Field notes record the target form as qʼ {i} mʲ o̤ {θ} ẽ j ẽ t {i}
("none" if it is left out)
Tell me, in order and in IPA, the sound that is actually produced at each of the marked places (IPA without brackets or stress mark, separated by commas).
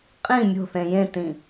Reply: ĩ, θ, ĩ